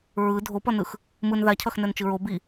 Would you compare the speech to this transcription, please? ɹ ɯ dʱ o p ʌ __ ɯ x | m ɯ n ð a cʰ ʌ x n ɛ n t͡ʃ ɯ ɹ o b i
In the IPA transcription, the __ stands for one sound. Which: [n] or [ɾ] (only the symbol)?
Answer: n